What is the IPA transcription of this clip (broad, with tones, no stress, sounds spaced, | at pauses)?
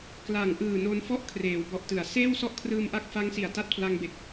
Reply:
k l a˨˩ ŋ ʔ ɯː˨˩ n o˧ n f ɔ˥˩ ʔ kʰ r eː˩˦ w b ɔ˨˩ ʔ t ɯ˩˦ a̯ s eː˥˩ w s ɔ˥˩ ʔ kʰ r ɯː˧ m ʔ a˦˥ k̚ f a˦˥ ŋ s i˨˩ a̯ t a˦˥ t̚ pʰ l a˧ ŋ b e˨˩ k̚